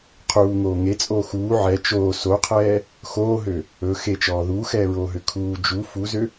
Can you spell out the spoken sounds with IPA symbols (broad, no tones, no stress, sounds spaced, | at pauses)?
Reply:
qʰ uː ŋ oː ŋ e t͡sʼ oː x uː ʕ ɛ t͡ʃ oː s o qʰ ɛː | x oː ɦ ø | ɵ x e t͡ʃ ɔː ð uː x ɛː ɹ oː ɦ ø kʰ uː d͡ʒ u f u z ø